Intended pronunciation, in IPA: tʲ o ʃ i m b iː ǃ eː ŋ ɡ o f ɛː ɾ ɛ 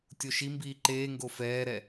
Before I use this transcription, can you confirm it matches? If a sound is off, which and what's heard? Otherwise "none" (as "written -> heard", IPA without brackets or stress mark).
none